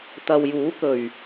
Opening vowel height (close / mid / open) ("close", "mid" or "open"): open